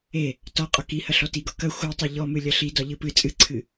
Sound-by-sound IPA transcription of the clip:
e | t ɒ qʼ ɒ k i h ɐ ɬ ɔ t i ɡ ɒ k ɐ xʷ a tˤ e ʎ ɔ m ɨ lʲ ɐ ɬ i d ɒ ʎ ɨ p ɨ t͡sʼ ɨ ǀʰ ɨ

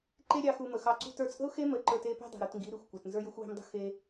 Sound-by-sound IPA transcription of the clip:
ǃ e˦ ɾʲ ɑ˧ x u˧ m ə˨ x ɑ˧ ǀ ṳ˦ t ə˞˧ t͡sʼ ə̤˦ ʊ̯ x e˦ m ə˨˦ ǃ ə˞˧ t e˦ p e̤˦ dˤ e̤˨ ɾ u˨ t ŋ ɡ i˨˦ ɾ i˨ xʷ kʷ e˨ t n z ə˞˧ j ə˧ xʷ w e̤˧ m dˤ ə̤˦ x e˧

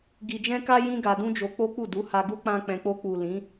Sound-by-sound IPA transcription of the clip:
ɡ i˧ d͡ʒ ɛ̃˦ k a˦ j ĩ˦ ɡ a˧ d ũ˦ d͡ʒ o˧ k͡p o˦ k͡p u˦˨ d u˨˦ h a˧ ɡ u˦ k͡p ã˦ k͡p ɛ̃˧ k͡p o˧ k͡p u˨ l ĩ˨˦

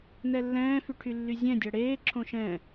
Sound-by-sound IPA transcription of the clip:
n ɛ lː ɛ̃ː f y ʈʰ y lː y zʲ ɛ̃ dʲ ʌ ɽ eː ǁʰ õ ʃ ɛ̃

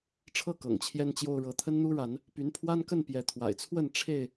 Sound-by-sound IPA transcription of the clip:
ʈ͡ʂʰ ɤ˥˨ k ɤ̰˨˩ ŋ t͡ɕʰ j ɛ˦ n t͡ɕ j o˦ ʊ̯ ɻ ɤ˨˦ t̪ʰ ə˦ n n̪ u˦ ɻ a˨˦ n | p y˨˦ n pʰ w a˦ n k ə˥˨ n p j ɛ˨˦ t̪ʰ w a̰˨˩ ɪ̯ t͡sʰ w ə˥˨ n ʈ͡ʂʰ e˥˨ ɪ̯

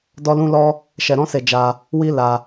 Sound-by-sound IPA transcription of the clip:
d ɔ˦ l ũ˦ l ɔ˦ | ʃ ɛ˧ ɾ ɔ̃˦ s e˧ d͡ʒ a˧ | w i˦ l a˧

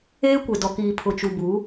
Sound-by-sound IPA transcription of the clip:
eː˦ kʷ e˨ d ɔ˨ k iː˨ pʰ ʊ˨ t͡ʃ u˨ b u˨˦

